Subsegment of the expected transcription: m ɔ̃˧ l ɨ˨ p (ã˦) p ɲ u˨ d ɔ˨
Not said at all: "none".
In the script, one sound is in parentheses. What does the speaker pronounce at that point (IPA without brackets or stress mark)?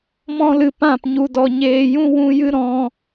ã˦˨